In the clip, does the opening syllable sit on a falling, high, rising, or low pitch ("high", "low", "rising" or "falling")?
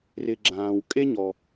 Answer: low